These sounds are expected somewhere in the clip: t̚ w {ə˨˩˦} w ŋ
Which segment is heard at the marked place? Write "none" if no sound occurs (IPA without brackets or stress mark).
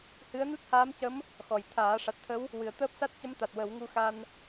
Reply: ə˨˩˦